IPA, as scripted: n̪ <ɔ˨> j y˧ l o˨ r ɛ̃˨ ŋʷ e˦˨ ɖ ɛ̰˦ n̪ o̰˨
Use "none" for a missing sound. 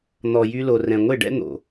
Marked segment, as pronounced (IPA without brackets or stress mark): ɔ˨